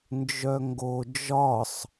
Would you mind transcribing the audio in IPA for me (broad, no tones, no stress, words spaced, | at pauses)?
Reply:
nd͡ʒœŋɡo d͡ʒɒsˤ